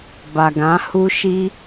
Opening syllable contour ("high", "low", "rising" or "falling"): low